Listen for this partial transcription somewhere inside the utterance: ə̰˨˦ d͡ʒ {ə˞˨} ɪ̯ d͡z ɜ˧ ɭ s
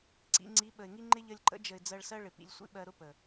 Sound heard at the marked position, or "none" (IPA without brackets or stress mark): ə˨